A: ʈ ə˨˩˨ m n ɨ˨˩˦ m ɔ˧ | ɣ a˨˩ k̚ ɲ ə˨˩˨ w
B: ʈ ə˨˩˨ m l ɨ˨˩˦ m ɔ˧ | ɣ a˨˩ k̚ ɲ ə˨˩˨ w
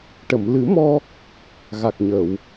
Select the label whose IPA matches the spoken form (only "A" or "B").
B